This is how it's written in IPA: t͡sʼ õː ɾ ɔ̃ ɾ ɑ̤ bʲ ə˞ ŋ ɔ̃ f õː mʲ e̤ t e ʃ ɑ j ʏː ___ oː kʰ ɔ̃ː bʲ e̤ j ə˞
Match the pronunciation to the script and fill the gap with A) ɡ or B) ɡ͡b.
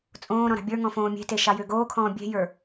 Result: A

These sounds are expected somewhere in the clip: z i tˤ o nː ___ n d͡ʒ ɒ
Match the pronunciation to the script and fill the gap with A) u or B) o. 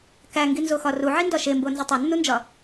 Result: A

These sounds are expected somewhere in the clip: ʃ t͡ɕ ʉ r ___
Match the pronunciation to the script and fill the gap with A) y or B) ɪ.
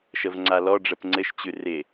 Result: B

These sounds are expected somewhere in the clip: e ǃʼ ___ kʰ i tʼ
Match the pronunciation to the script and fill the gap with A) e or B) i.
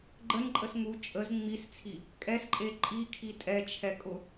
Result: B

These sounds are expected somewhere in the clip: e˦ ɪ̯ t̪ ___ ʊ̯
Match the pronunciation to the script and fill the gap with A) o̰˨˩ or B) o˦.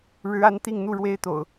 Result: A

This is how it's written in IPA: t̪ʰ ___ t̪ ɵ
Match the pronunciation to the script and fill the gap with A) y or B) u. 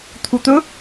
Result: B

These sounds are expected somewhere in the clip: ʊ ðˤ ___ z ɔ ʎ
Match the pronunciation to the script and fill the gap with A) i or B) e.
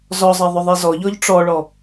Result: B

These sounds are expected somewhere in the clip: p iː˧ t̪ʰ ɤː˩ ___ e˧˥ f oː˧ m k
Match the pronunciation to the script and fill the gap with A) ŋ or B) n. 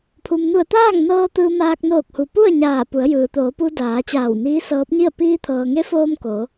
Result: A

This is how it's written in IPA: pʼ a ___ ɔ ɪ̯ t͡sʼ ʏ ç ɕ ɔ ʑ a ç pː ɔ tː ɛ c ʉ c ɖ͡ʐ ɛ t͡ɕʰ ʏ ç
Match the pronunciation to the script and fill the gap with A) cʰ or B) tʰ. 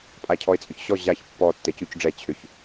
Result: A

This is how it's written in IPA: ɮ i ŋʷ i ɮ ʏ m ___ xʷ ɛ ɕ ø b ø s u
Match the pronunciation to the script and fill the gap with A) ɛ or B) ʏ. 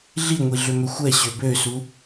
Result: B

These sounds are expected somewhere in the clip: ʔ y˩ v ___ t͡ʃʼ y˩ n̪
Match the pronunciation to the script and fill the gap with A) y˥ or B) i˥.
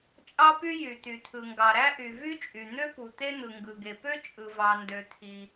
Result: A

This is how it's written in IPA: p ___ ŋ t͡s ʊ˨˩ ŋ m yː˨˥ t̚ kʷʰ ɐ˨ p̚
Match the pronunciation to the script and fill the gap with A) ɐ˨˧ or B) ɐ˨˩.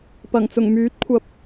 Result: B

